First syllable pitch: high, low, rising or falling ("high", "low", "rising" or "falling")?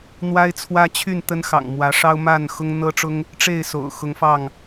high